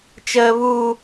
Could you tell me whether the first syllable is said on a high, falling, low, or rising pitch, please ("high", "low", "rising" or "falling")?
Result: high